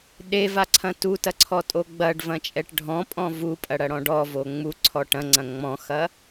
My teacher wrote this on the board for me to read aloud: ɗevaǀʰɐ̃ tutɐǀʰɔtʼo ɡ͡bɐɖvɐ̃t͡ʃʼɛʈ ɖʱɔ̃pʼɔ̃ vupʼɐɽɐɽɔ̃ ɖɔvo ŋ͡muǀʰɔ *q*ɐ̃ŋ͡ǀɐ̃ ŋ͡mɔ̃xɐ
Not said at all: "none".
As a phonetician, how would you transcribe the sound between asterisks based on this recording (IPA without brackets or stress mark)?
ʈ